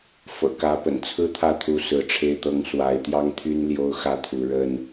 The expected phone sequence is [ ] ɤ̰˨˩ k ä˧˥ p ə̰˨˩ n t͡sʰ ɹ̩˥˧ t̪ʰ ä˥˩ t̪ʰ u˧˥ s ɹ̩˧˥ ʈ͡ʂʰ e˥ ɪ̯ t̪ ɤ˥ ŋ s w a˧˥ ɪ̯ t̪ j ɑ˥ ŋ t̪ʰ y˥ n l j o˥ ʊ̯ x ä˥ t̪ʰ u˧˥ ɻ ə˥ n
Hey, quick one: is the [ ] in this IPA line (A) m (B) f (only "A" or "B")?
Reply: B